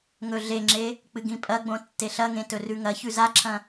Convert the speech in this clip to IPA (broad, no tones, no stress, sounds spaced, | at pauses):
ŋ ɵ ɮ e ŋ͡ǁ e | k͡p ɨ ɡ ĩ pʼ ɐ ɡ͡b õ tː e ɬ ɐ ŋ ẽ t ɵ r ʉ ŋ ɐ ç ʉ z a ǁʰ ɐ̃